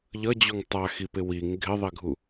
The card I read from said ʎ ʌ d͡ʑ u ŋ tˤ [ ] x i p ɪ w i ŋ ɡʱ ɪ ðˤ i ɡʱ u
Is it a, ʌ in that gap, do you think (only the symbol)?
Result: a